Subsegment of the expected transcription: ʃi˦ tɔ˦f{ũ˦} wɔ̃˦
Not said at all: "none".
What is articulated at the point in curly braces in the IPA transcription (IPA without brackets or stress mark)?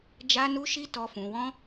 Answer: ũ˧